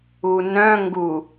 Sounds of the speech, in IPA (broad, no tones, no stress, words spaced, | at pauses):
unœ̃ ŋɡu